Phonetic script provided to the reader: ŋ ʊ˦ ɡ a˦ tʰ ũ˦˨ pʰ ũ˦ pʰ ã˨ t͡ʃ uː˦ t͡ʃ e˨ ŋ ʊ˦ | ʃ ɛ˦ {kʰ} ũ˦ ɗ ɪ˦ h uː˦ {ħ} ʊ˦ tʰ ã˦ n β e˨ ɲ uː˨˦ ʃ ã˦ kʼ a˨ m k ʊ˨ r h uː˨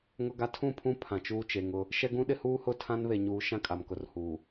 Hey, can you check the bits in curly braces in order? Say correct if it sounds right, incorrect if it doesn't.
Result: incorrect: ɡ, incorrect: h

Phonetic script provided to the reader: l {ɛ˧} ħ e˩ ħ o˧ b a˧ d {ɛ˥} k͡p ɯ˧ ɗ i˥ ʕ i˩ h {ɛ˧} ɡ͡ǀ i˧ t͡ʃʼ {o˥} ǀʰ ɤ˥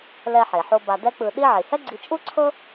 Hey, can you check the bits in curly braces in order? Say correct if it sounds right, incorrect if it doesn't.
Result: correct, correct, incorrect: ɛ˥, incorrect: u˥

